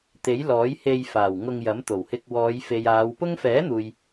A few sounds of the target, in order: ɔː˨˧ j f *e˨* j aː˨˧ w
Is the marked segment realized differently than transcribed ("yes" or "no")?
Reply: no